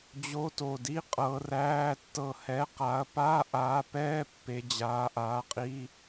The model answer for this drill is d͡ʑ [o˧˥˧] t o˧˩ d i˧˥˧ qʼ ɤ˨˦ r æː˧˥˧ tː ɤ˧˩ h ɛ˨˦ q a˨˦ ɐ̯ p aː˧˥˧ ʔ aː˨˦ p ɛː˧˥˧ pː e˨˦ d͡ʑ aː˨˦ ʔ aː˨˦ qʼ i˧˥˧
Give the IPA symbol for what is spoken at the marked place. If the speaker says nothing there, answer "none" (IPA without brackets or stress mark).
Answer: o˧˥˧